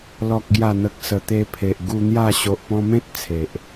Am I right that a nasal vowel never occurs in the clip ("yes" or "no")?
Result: no